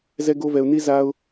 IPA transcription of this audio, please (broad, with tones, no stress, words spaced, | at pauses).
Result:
zɛ˦ɡo˦vɛ˧ʊ̯ ni˦za˦ʊ̯